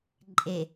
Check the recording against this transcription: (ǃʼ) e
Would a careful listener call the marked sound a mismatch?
no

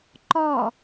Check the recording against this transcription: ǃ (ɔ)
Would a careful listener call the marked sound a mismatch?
no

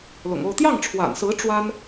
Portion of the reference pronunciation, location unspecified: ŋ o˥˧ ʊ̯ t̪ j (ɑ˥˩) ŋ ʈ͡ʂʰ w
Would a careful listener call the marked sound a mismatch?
no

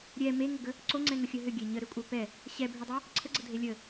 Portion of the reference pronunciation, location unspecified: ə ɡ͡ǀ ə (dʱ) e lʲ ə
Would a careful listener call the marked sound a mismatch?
no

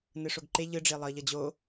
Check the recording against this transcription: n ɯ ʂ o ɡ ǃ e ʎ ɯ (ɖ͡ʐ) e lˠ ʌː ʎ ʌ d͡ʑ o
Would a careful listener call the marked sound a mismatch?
no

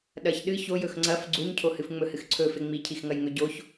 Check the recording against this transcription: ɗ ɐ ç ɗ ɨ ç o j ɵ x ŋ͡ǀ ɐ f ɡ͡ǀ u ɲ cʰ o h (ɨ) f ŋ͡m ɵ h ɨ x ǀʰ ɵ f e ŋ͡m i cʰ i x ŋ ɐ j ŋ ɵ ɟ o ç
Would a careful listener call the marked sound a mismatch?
no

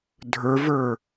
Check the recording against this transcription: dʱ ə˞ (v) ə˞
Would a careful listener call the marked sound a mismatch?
no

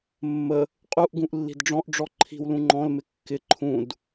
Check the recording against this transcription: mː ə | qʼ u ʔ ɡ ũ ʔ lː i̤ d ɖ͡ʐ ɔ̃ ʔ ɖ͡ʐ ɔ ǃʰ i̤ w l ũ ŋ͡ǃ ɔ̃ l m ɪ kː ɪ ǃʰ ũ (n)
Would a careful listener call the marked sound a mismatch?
yes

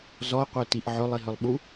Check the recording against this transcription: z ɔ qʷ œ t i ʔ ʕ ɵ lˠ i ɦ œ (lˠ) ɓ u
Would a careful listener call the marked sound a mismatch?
no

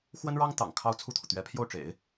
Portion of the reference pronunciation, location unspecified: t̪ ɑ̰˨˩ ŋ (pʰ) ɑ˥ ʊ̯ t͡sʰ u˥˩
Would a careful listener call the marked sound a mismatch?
yes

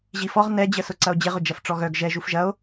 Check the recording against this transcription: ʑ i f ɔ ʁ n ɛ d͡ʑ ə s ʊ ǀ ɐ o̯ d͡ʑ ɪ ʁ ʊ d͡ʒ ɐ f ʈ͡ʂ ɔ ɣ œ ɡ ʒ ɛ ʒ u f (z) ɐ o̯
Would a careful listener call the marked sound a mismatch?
yes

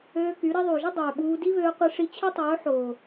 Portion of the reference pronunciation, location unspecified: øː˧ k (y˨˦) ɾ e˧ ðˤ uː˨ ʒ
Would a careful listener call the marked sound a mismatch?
no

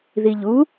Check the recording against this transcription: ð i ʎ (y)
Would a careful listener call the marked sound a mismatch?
yes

